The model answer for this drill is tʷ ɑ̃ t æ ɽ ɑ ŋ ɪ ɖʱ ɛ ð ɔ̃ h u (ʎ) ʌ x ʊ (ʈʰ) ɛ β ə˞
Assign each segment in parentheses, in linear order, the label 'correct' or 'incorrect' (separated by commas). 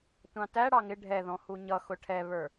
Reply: incorrect, correct